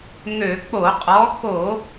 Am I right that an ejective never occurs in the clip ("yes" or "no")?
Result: no